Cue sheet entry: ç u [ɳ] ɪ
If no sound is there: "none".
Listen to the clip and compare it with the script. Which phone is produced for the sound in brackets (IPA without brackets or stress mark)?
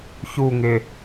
ŋ